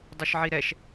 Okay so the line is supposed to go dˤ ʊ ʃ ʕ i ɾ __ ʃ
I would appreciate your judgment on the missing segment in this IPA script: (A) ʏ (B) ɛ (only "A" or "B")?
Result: B